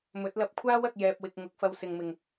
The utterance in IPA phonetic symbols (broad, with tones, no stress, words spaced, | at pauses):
mɵ˨˥t̚lɐ˧p̚ kʷʰaː˥wɐ˨k̚ jɛː˨p̚wɪ˨k̚ ŋʊ˨˥k̚fɐ˧wsɪ˨ŋmɪ˨˩ŋ